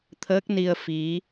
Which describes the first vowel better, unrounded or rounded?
unrounded